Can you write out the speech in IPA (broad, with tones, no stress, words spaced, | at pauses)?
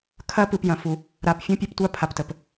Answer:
kʰɐ˦pɯ˨p jɐ̃˨fu˨ | ɾa˨p fʲũ˦pʲɘ˦ptʷa˦ pʰa˨ptə˨p